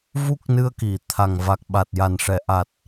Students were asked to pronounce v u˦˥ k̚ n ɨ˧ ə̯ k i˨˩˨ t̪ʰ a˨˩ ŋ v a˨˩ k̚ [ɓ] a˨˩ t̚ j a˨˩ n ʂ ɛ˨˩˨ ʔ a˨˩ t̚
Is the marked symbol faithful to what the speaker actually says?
yes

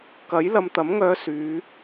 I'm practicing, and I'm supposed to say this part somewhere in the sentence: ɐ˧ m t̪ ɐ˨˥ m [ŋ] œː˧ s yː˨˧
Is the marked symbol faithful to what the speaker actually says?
yes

